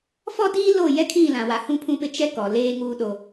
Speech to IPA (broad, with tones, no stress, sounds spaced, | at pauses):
f ɔ˦ d iː˦ l o˦˨ j ɛ˦ kʰ ĩ˦˨ l ã˨ w a˨ h ũ˦ pʰ ũ˦ p ɪ˦ t͡ʃ ɛ˦ k ɔ˨ l eː˦ ŋ uː˦ ɗ o˦